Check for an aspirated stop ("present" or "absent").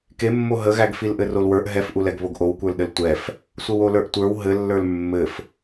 absent